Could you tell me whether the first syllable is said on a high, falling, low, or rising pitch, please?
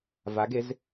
rising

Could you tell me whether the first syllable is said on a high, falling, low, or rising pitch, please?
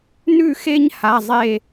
falling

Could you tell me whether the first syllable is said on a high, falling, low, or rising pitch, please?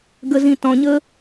low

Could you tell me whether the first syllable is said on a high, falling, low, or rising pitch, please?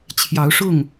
rising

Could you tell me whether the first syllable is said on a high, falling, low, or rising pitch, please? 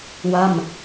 falling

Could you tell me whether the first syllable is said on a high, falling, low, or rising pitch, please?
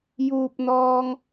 low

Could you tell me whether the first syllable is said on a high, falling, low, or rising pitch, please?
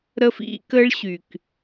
high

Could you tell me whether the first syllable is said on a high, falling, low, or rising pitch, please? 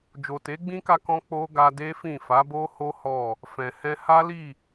low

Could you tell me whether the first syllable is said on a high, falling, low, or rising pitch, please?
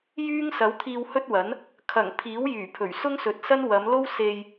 high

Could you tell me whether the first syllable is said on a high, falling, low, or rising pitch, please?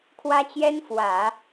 high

